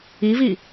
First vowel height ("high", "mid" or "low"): high